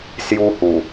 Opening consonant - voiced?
no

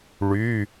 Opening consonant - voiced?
yes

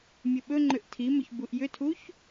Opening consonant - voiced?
yes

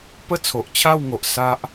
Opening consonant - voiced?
no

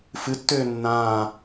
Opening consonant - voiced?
no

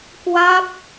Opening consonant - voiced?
no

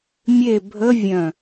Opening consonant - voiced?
yes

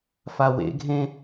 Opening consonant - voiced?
no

